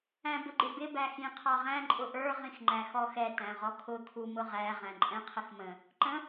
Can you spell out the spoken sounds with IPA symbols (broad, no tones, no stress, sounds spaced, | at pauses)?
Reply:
æ̃ b ʊ ɡ͡ǃ ɪ b ɪ b æ x ĩ qʰ ɑ ʁ æ̃ ǃʼ ʊ ʔ ə˞ ʁ ĩ x ŋ͡ǃ æ x ɔ x ɛ t æ̃ ʁ ɔ kʰ ʊ kʰ u m ʊ ʁ æ ʁ æ̃ ǃʼ ɛ̃ qʰ ə x m ə̃ | ǃ ə̃